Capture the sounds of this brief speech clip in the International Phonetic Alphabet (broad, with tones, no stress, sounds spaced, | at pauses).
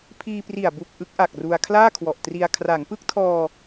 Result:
pʰ iː˧ p r i˨˩ a̯ b u˨˩ k̚ ʔ ɯ˦˥ k̚ ʔ a˨˩ k̚ r u˧ a̯ kʰ l aː˥˩ kʰ w ɔ˨˩ ʔ t r i˧ a̯ kʰ r a˩˦ ŋ p ɯ˦˥ k̚ tʰ ɔː˧